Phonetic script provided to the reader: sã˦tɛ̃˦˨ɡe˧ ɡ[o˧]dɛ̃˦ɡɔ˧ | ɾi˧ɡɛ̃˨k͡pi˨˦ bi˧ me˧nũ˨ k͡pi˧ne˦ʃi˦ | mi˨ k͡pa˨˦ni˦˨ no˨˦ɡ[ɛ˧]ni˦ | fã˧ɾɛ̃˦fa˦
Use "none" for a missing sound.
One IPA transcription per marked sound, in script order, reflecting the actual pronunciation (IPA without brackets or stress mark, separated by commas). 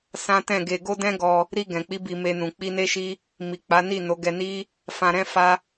o˦, ɛ˧